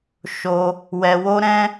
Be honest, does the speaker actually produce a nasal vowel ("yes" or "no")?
yes